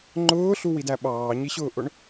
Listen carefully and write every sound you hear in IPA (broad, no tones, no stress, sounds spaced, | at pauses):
ŋ͡ǃ ʊː ɬ u w i d æ ɓ ɑː ɲ i ɕ ʊː ʔ ʊ ɳ